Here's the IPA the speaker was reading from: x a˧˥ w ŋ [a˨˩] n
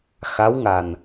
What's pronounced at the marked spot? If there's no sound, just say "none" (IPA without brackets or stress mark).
a˨˩